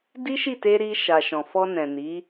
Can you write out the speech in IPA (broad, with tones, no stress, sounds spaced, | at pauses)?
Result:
d i˦ ʃ i˦˨ t e˧ ɾ i˧ ʃ a˨ ʃ ɔ̃˨ f ɔ˧ n ɛ̃˨ n i˨˦